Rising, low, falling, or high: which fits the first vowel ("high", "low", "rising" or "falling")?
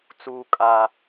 high